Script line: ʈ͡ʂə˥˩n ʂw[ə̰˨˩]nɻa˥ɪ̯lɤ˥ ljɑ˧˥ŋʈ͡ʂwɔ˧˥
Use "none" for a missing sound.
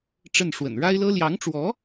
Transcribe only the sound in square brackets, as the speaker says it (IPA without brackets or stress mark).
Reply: ə̰˨˩